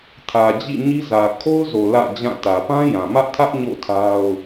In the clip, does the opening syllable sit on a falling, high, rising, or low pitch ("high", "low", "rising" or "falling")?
low